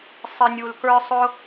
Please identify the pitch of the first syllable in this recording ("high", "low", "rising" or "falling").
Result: low